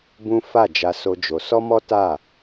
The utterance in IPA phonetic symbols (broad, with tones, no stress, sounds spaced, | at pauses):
b ũ˦ f a˦˨ d͡ʒ a˧ s o˧ d͡ʒ o˧ s ɔ˦ m ɔ˦ t a˦˨